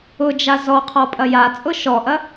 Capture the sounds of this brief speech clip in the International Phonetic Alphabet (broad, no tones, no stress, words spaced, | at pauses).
ʊd͡ʒa zɔqʰɔ pʼɐjat͡sʼʊ ʃɔʔɐ